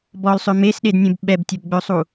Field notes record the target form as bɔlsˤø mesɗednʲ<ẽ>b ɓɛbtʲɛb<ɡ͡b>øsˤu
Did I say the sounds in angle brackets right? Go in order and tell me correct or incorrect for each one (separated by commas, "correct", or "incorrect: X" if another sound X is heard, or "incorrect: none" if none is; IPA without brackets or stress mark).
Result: correct, correct